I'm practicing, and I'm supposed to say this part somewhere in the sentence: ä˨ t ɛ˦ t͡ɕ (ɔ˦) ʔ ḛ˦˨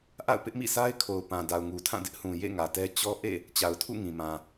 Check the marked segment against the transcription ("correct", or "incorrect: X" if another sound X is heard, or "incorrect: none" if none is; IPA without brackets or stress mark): correct